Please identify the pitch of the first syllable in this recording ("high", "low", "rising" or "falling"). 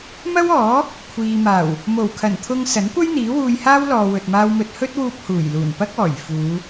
high